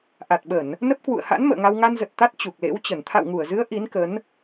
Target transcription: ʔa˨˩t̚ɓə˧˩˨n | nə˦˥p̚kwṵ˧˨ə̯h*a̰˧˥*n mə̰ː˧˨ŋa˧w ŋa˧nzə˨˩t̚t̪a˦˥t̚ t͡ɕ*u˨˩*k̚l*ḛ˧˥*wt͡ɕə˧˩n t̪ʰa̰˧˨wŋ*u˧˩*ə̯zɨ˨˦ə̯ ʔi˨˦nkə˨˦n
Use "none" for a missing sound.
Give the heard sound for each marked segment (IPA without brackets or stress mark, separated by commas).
a̰˧˥, u˨˩, ḛ˧˥, u˧˩